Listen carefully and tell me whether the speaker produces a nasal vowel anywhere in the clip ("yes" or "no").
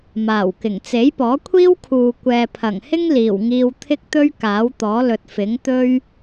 no